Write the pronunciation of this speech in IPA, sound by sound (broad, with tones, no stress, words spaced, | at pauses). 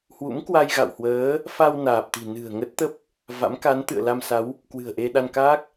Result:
hwṵ˧˥mkwa˧jɣa̰˧˨whwəː˨˦ | fa˧w naː˨˩p̚t̪i̤˨˩nɨ̤˨˩ə̯ ŋə˦˥t̚t̪ə˦˥p̚ | va̰˧˥mka˨˦n t̪ɨ̰˧˨ə̯la˧msa˨˦w | kwɨ̤˨˩ə̯ʔe˧ɗa˧nkaː˦˥k̚